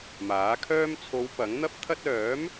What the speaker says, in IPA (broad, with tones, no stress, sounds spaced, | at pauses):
m aː˨˥ kʰ œː˥ m t͡sʰ o˨˧ w p ɐ˨˥ ŋ n̪ ɐ˥ p̚ t̪ʰ ɐ˥ t̚ œː˨˥ m